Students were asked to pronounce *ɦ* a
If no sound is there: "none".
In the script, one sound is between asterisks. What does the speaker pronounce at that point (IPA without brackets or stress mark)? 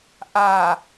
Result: ʔ